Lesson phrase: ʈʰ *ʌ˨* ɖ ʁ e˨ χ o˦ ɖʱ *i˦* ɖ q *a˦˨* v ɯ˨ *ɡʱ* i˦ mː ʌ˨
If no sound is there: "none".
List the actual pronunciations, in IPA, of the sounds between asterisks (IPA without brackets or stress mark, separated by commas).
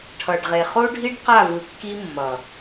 ʌ˨, i˦, a˦˨, kː